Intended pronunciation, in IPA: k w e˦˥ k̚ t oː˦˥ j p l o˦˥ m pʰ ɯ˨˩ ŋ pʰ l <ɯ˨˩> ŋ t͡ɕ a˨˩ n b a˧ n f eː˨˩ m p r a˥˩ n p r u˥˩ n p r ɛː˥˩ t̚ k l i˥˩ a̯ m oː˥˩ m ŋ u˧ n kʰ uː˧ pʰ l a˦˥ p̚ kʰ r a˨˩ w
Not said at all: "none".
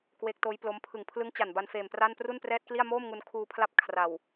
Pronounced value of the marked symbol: ɯ˦˥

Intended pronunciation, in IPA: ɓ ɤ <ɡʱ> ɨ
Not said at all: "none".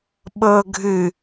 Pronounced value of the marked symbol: ɡʱ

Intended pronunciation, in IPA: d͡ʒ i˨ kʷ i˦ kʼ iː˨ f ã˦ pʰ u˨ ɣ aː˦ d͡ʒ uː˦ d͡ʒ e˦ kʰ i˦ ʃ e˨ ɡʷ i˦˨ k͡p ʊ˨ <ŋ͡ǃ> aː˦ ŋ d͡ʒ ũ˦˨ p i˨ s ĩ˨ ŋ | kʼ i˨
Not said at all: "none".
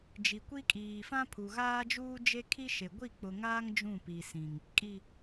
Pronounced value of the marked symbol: ŋ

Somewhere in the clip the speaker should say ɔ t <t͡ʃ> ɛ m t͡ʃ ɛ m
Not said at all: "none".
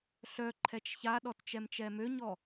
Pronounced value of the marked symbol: t͡ʃ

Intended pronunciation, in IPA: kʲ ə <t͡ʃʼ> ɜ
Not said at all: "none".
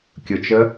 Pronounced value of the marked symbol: t͡ʃ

